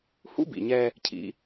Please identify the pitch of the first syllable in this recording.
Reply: high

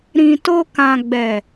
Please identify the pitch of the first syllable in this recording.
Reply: low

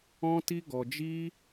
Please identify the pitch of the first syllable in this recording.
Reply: high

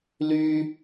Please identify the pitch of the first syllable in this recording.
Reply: high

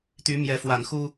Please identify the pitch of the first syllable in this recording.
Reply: rising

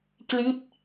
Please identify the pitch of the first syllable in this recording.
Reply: falling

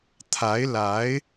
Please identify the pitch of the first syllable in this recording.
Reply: rising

